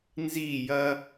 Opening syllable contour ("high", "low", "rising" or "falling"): falling